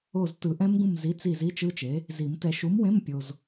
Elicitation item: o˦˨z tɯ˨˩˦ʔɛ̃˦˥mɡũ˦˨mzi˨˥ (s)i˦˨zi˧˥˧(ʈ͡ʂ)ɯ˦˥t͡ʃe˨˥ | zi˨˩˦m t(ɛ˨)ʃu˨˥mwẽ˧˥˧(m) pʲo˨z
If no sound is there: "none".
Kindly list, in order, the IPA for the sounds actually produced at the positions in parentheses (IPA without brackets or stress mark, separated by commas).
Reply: t͡s, t͡ʃ, ɛ˨, m